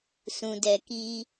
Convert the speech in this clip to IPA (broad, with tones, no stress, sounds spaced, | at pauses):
s ũ˨ d ɛ˨ k iː˦